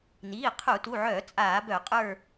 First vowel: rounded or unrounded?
unrounded